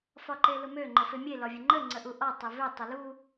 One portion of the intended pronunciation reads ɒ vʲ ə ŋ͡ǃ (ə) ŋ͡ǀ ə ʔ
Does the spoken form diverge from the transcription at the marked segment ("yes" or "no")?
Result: no